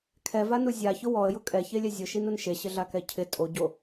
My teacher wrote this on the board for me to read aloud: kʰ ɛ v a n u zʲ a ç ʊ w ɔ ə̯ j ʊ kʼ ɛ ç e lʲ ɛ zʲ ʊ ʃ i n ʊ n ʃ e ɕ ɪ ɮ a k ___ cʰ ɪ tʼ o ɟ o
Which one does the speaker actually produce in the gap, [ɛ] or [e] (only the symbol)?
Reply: ɛ